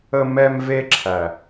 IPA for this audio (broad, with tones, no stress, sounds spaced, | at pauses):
ə˦ m ɛ˦ m v e˦ ǁʰ æ˨